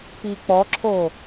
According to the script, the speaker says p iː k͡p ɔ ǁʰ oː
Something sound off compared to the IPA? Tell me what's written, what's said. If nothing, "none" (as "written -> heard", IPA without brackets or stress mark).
none